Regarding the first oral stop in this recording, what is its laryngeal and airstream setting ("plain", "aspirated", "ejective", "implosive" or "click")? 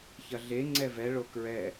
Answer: click